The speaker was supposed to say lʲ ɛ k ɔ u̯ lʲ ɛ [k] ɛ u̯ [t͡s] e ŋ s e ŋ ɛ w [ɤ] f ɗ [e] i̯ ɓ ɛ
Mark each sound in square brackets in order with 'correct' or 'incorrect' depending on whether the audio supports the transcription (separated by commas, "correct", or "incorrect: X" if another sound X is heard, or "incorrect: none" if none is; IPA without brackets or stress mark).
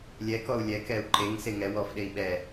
correct, incorrect: ǃ, incorrect: ɔ, correct